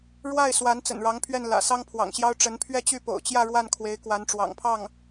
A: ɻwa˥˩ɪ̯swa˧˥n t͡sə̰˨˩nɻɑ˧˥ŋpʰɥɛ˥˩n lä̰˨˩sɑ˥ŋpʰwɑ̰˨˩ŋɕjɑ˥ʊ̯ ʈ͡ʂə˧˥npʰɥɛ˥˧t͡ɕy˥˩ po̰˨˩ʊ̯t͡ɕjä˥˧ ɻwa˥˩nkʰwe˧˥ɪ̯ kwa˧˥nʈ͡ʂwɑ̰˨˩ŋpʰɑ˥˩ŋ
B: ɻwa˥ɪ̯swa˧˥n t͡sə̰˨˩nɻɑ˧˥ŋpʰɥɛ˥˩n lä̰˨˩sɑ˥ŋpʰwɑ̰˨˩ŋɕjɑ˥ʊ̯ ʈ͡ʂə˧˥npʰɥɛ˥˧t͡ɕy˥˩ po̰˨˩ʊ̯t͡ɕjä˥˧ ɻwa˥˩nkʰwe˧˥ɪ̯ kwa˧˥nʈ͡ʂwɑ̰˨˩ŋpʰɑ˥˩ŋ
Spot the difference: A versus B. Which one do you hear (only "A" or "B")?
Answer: A